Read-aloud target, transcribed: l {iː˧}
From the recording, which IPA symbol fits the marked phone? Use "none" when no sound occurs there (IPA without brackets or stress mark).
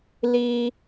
iː˧